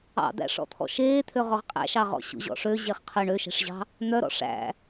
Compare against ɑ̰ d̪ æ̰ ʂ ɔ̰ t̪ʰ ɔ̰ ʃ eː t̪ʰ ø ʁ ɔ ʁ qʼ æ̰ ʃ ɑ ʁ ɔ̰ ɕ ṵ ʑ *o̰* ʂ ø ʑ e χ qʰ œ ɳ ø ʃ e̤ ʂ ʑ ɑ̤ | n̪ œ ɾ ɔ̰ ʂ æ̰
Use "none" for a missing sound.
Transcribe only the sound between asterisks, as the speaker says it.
ɔ̰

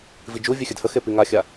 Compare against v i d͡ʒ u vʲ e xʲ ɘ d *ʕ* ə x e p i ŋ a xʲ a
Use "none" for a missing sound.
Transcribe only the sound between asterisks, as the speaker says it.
h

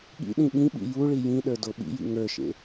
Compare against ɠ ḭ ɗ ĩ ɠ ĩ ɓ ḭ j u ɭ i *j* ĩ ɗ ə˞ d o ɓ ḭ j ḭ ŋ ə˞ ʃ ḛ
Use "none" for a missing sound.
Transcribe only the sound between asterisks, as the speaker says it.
j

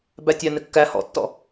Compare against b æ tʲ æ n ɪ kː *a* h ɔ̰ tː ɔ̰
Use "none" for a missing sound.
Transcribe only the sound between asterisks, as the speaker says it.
æ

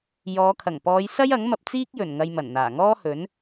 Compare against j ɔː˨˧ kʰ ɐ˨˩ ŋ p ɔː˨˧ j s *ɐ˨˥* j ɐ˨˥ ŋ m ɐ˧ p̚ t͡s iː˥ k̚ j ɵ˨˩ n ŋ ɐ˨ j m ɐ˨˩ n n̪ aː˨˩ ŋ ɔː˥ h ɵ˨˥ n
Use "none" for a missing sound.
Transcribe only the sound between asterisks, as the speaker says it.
ɐ˥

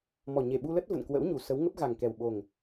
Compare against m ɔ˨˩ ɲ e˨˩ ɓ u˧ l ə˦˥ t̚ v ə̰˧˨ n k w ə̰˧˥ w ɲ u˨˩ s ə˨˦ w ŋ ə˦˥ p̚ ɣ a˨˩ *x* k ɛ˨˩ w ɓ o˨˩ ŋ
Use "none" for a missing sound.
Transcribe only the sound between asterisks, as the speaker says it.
ŋ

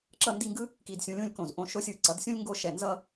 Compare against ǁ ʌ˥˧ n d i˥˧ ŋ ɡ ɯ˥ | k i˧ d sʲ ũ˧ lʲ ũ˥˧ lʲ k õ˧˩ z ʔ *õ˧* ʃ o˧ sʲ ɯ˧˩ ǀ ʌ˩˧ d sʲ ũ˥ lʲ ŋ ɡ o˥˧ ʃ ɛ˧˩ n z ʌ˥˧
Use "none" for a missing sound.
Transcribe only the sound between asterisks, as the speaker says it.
õ˧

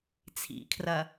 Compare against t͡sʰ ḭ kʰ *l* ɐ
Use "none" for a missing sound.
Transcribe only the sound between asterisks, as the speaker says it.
r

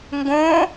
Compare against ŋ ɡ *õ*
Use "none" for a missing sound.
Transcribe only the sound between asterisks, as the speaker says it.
õ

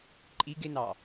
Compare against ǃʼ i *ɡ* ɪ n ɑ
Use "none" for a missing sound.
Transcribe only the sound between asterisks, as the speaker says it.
ɡ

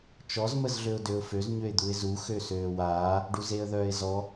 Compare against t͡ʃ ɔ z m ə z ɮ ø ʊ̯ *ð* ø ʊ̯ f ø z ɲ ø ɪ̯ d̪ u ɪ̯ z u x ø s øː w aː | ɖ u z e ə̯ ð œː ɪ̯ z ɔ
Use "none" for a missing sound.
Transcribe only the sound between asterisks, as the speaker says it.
d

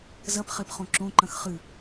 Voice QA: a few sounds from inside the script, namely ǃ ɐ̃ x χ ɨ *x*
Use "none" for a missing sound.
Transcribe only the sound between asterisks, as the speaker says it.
none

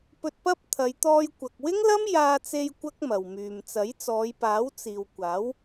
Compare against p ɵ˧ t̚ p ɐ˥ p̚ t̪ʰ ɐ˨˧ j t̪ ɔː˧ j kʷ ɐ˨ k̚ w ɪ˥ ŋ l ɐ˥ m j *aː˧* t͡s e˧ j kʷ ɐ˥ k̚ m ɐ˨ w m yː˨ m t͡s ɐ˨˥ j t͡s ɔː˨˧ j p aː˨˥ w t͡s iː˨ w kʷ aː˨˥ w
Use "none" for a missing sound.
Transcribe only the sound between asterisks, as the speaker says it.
aː˧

